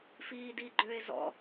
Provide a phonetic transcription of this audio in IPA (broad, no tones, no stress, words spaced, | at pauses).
fiːdiɡ͡ǃøe̯zɔ̰